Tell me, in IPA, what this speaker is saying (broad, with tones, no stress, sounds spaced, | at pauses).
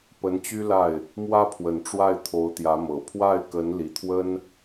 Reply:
p ə˧˥ n t͡ɕ y˥ l a˥˩ ɪ̯ | m w ä˥ pʰ w ə˨˩ n ʈ͡ʂ w a˥˩ ɪ̯ t̪ʰ o˧˥ ʊ̯ t̪ j ä˧˥ m ɤ˨˩ pʰ w a˥˩ ɪ̯ k ə˧˥ n l i˨˩ t̪ʰ w ə˥ n